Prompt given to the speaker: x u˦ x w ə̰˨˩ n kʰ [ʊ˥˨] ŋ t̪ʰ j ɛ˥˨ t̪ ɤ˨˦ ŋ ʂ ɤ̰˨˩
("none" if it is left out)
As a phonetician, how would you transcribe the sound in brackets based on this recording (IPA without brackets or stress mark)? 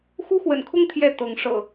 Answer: ʊ˦